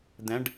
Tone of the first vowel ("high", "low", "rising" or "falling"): rising